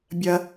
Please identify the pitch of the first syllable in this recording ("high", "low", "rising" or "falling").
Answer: high